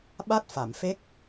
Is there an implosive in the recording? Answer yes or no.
yes